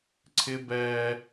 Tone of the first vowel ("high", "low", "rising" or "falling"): high